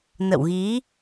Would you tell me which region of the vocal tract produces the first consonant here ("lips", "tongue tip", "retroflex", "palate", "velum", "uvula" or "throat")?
tongue tip